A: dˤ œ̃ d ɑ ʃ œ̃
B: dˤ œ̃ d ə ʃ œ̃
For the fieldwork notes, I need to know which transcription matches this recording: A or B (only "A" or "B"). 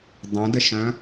B